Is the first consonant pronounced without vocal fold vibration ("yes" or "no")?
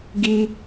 no